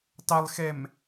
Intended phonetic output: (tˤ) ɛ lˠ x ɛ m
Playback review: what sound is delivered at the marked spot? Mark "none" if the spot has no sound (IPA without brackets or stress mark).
tˤ